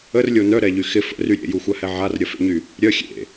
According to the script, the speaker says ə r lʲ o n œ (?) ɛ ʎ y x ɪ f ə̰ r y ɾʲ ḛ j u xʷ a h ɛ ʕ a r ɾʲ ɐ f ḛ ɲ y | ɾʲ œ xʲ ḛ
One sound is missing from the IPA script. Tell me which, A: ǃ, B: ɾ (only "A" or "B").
B